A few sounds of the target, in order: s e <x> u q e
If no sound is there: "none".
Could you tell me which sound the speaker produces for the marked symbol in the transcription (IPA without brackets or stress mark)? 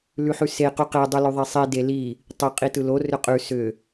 q